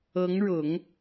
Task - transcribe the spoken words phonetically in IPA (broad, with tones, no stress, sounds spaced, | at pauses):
ɤ˧˥ ŋ ɻ ʊ˨˩˦ ŋ